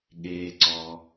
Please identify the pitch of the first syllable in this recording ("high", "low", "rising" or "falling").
low